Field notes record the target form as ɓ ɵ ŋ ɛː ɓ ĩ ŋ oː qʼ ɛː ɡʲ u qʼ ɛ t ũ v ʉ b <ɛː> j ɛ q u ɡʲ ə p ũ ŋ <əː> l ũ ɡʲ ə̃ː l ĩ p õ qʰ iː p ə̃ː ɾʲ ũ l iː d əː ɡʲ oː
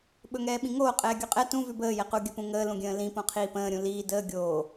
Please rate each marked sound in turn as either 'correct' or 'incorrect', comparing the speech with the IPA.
incorrect: əː, correct

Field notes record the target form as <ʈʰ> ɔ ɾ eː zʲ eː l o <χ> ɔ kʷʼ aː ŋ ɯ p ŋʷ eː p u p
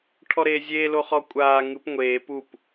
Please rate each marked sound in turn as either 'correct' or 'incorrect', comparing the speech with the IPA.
correct, correct

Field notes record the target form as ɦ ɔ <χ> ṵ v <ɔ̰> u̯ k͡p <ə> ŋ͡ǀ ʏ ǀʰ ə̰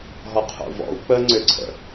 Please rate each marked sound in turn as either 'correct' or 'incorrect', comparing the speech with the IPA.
incorrect: qʰ, correct, correct

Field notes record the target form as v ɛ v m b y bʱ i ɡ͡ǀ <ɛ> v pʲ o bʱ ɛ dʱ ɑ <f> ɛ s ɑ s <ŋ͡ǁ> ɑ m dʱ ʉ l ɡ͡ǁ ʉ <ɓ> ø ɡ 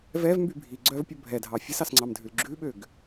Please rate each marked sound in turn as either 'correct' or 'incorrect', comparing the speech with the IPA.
incorrect: œ, incorrect: fʲ, incorrect: ŋ͡ǀ, correct

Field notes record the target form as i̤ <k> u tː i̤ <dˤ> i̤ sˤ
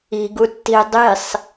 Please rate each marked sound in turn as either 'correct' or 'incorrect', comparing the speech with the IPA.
incorrect: ɡ, correct

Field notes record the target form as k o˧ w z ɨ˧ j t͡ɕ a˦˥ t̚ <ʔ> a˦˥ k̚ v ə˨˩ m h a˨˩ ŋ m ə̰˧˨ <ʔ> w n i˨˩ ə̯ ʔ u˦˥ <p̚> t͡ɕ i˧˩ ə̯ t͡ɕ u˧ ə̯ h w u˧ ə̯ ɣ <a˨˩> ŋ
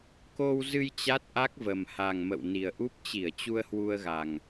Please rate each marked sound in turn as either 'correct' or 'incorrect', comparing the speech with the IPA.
correct, incorrect: none, correct, correct

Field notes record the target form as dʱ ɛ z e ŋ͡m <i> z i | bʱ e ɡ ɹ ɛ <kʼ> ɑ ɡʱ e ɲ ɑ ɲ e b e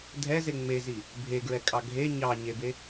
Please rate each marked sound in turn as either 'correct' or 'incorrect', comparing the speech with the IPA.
incorrect: e, correct

